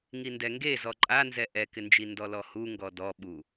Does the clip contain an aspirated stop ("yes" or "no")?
no